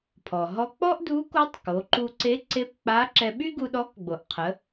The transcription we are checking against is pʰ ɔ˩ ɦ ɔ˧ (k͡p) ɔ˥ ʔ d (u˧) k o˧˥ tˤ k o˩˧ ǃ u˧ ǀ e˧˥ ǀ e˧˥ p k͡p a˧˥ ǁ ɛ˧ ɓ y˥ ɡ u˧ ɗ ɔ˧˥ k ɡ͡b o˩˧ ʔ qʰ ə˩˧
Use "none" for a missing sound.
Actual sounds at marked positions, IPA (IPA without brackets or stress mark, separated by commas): k͡p, u˧˥